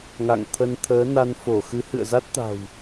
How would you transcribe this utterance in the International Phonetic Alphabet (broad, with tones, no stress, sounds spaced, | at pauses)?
ŋ a̰˧˨ ŋ t̪ʰ ə˧ n t̪ʰ əː˨˦ n a˧ n f o˧˩ x ɨ˨˦ h ɨ̰˧˨ ə̯ z a˦˥ t̚ t̪ a̤˨˩ w